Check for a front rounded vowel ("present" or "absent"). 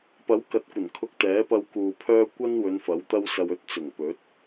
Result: present